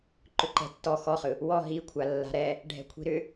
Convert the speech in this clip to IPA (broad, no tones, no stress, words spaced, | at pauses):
ǃʏǃɛ̤tːɔ xɔχɯ | wɔ ɦikʷʰa lːa̤ɾɛ | ɖʱɛ̤kʷʰi̤ɾʏ